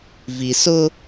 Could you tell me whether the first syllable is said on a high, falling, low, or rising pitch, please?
low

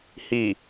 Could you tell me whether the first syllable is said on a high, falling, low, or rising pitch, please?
low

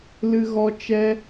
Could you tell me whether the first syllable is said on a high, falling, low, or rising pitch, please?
high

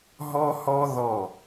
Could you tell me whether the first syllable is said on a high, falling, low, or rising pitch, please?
high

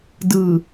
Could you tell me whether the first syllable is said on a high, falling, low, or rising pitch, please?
low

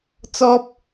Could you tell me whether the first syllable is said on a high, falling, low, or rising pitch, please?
high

